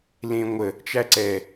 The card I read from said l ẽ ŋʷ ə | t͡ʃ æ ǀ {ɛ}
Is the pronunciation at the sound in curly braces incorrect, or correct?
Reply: correct